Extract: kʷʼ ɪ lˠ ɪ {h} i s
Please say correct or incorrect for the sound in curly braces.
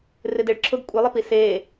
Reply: incorrect